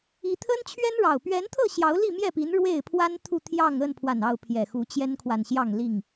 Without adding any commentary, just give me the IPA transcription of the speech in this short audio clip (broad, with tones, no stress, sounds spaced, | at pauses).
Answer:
i˦ t̪ʰ ə˦ n t͡ɕʰ ɥ ɛ˦ n ɻ ɑ˨˩ ʊ̯ p ɥ ɛ˨˦ n t̪ʰ ɤ˥˨ ɕ j ɑ˨˦ ʊ̯ l i˥˨ m j ɛ˥˨ p i˨˦ n ɻ w e˥˨ ɪ̯ pʰ w a˦ n t̪ʰ u˥˨ t̪ʰ j ɑ˥˨ ŋ ə˥˨ n pʰ w a˨˩ n ɑ˥˨ ʊ̯ pʰ j ɛ˨˩ x u˨˦ t͡ɕ j ɛ˦ n kʰ w a˨ n ɕ j ɑ˥˨ ŋ l i˥˨ ŋ